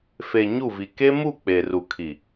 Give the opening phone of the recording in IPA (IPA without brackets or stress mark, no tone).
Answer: f